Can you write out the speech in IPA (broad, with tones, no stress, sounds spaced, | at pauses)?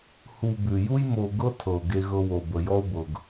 h u˨ b ʉ˩ j u˦ j m o˨ ɡ ɤ˥ tʰ ɤ˩ ʊ̯ ɡ e˦ ɣ ɤ˦ w o˨ b ə˩ j ɔ˥ ʊ̯ b ɤ˩ ɡ